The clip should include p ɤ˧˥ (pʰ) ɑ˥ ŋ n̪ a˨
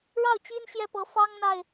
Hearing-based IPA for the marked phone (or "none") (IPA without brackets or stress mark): f